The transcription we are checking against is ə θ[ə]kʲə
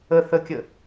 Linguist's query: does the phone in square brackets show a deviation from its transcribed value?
no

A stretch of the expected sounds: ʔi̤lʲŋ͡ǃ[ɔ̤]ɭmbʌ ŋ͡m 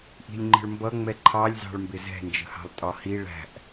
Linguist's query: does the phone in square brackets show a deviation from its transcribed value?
yes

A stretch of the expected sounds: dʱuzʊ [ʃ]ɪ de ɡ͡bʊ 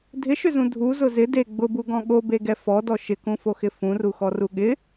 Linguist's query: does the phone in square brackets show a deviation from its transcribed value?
yes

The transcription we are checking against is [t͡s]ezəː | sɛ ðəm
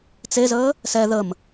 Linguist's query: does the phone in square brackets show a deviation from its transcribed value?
no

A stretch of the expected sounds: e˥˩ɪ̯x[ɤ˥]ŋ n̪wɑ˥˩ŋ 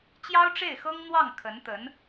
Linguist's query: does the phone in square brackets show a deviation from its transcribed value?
no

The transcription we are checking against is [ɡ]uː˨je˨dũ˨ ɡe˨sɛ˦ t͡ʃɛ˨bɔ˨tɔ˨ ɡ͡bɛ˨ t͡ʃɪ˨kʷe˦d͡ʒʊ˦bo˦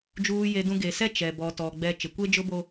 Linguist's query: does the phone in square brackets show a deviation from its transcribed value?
yes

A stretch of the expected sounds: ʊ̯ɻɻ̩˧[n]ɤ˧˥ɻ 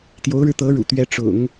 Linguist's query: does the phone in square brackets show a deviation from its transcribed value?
yes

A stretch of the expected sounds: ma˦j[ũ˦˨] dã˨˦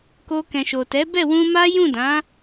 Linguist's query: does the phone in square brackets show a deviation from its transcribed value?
no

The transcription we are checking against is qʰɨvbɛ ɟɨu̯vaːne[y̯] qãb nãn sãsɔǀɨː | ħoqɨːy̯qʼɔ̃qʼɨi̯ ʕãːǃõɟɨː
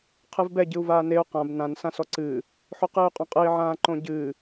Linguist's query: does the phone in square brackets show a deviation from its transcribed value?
yes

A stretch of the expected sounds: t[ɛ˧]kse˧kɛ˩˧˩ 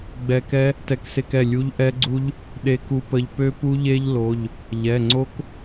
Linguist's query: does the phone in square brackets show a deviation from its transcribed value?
no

